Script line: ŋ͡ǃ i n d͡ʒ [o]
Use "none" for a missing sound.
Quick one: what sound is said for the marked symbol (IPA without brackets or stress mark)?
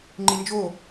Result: o